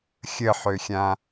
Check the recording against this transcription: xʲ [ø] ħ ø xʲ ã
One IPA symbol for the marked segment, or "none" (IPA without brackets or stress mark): ə